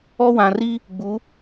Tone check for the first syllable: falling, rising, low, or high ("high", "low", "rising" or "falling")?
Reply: high